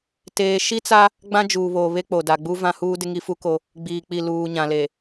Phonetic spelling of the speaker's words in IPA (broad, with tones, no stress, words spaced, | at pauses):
teː˨ʃi˦t͡sa˦ | ɡ͡bã˦d͡ʒuː˨βoː˨ βe˦k͡po˨da˨ɡ͡bu˦ vã˦huː˦dɪ˦ ŋi˦fu˦ko˦ | ɡ͡biː˨k͡pi˨luː˨ ɲã˨le˨